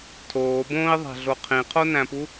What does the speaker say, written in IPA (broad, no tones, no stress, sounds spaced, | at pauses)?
tʰ oː b õː i̯ ðˤ æ̤ ɮ o qʰ ĩ qʰ o n æ̃ p u